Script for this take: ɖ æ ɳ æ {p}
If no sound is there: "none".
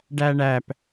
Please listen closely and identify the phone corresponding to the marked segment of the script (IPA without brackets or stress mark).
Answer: p